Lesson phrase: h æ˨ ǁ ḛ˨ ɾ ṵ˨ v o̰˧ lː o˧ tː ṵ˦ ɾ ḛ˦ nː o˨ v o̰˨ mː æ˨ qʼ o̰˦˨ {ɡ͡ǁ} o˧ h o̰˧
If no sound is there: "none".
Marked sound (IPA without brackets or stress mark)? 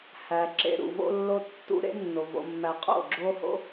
ɡ͡ǁ